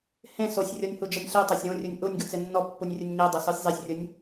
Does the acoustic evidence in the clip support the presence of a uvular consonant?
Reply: no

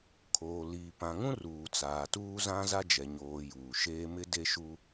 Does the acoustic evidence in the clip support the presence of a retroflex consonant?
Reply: no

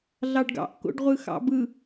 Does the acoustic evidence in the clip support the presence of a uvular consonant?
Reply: yes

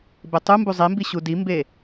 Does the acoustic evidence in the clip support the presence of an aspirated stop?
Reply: no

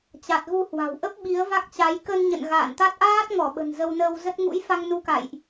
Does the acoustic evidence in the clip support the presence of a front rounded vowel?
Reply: no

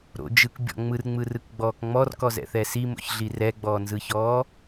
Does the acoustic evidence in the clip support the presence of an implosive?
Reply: no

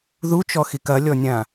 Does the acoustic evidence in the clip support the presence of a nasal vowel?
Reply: yes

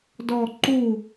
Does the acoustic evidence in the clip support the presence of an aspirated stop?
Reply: no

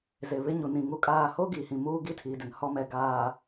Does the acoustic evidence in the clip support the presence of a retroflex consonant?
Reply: no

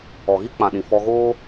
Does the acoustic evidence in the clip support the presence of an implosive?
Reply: yes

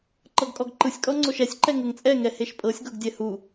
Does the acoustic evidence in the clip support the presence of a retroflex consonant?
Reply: no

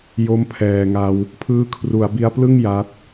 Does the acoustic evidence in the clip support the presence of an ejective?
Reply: no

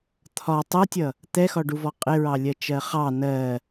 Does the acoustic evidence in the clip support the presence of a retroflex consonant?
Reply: yes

